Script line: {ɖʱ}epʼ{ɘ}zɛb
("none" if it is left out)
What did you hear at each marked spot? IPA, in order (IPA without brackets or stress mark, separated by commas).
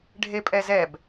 ɖʱ, ɛ